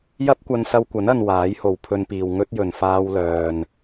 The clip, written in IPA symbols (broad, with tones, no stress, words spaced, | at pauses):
jɐ˥p̚kʷɐ˧n sɐ˧wkʷɐ˨˥nɐ˨n waː˨˥jho˨wpʰɵ˧npiː˨w ŋɵ˥t̚jɵ˨n faː˧wlœː˨n